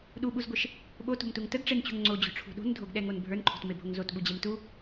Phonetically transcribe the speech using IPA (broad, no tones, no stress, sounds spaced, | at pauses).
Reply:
ɗ u ɓ u z ɡʷ e ʃ | ɓ o t o̤ m t u ŋ t ə ɡ ʈ͡ʂ e n t͡ɕ ṳ ŋ ŋ͡ǀ o d͡ʑ o̤ ʈ͡ʂʰ ṳ ɗ o̤ n dʱ o ɡ ɗ ɛ ŋ o n bʱ ə˞ n ǃʰ o̤ t m e bʱ o ŋ z o t ɓ u d͡ʑ e m t u